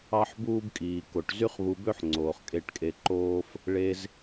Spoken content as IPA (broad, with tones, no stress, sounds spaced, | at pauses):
ɑ˦ ħ b uː˦ b kʼ iː˨ k o˨ ʈ z y˦ χ β u˧ b ø˦ ħ ŋ͡ǀ oː˨ χ kʼ e˦˨ ʈ kʼ e˧ ǃ oː˦ f | ɭ e˧ z